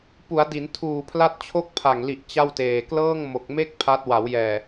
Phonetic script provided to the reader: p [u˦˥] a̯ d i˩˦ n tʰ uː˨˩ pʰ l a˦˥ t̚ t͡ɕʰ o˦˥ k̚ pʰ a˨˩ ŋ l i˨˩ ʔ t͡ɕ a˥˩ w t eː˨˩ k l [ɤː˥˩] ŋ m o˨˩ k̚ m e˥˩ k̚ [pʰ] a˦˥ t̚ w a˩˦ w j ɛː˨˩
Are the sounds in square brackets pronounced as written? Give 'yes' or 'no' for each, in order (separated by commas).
no, yes, yes